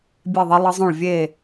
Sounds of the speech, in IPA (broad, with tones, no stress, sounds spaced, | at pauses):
bʲ e˥˨ ðˤ ə˦˥ lˠ ə˦˥ zˤ õ˥˨ ɭ vʲ e˥˨